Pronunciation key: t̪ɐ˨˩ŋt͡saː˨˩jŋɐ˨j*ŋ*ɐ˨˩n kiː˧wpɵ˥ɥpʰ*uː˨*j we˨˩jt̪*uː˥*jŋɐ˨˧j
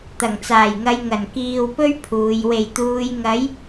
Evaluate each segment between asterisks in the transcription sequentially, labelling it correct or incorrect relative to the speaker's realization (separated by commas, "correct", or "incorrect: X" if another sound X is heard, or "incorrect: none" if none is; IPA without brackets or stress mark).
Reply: correct, correct, incorrect: uː˨